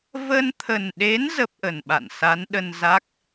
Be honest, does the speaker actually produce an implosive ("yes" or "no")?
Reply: yes